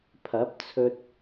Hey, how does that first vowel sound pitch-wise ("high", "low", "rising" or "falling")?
rising